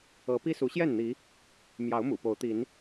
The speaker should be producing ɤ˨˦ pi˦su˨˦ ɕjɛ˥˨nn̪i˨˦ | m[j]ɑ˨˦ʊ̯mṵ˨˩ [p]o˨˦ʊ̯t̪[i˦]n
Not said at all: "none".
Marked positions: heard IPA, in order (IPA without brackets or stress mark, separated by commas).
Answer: j, p, i˨˦